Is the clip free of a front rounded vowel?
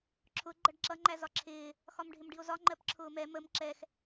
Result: yes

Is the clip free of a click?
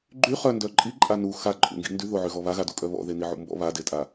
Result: no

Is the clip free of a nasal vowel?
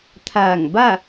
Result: yes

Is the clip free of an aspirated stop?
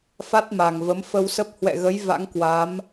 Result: yes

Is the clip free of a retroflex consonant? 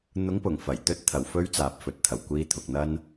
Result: yes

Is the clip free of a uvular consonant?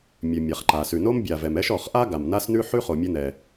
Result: no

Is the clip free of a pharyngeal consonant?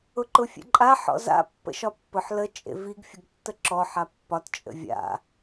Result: no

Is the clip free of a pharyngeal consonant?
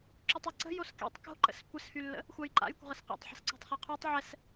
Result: no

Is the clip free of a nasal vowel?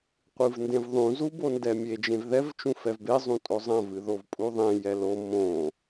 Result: no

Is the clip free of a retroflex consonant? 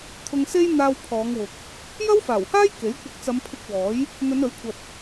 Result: yes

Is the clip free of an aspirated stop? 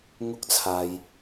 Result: no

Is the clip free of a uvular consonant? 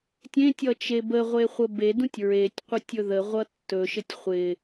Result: no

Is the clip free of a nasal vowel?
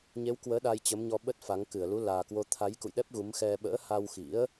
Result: yes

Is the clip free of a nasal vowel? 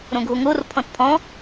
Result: no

